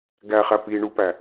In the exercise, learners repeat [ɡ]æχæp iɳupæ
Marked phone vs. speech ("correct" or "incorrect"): correct